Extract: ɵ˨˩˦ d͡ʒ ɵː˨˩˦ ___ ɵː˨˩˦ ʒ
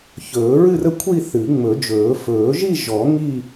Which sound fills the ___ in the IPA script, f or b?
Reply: f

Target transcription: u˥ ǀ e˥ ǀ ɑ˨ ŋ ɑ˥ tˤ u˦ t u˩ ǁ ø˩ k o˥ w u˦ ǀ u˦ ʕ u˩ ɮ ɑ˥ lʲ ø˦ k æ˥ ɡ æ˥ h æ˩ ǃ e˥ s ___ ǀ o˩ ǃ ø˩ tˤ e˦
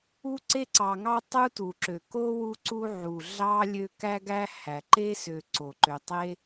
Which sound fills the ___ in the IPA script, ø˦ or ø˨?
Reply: ø˨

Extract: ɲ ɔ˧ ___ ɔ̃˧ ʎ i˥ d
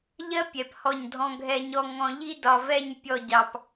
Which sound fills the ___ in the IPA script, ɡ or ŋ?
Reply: ŋ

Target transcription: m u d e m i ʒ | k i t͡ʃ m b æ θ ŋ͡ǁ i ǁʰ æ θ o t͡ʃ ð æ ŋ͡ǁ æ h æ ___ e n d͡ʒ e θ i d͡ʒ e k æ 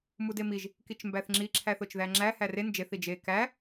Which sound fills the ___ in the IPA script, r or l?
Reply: r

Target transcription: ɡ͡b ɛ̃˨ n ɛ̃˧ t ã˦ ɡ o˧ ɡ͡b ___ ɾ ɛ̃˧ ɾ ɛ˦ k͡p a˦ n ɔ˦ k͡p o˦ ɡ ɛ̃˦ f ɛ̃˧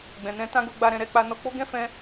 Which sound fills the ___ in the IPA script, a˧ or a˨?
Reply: a˧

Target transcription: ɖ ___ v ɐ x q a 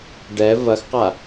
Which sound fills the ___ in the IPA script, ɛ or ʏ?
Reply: ɛ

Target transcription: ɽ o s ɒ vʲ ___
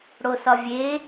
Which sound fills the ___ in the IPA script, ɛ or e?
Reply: e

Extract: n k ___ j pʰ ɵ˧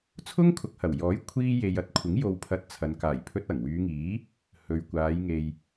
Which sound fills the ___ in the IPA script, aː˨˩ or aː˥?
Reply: aː˨˩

